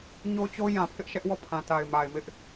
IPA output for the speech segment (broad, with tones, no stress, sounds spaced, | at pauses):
ɲ o˦ t͡ɕ o˦ j ã˨ pʰ ɪ˦ ʔ ʃ ɛ˦ ʔ w ɔ˦˨ pʰ ã˨ t a˨ ɪ̯ m a˨ ɪ̯ m ɪ˦ ʔ